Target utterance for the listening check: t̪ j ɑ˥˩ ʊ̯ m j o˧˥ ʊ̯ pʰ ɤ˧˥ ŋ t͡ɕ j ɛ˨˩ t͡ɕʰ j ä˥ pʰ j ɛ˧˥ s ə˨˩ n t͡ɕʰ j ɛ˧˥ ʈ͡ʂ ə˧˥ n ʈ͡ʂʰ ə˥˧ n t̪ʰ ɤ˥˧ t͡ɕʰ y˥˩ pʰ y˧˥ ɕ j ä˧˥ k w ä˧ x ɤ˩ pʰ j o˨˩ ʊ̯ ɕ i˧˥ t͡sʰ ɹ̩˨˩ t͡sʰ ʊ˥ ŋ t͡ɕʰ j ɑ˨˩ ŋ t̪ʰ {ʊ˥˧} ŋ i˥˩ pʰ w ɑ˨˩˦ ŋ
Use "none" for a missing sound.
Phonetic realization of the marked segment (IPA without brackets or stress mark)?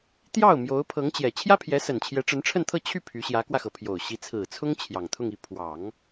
ʊ˥˧